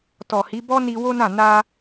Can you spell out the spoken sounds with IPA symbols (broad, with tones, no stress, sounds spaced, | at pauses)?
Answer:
t ɔ˨ h i˨˦ b ɔ˦ n i˧ w o˦ n ã˦˨ n a˧